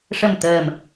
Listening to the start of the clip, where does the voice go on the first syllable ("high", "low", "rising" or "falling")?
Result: low